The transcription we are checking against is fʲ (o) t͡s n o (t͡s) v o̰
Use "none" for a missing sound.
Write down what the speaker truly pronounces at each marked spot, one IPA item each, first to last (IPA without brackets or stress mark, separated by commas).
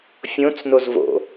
õ, z